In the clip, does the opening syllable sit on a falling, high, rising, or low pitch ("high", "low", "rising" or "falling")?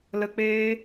low